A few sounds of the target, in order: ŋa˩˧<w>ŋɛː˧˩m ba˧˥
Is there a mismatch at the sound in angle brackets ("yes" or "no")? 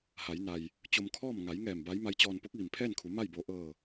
yes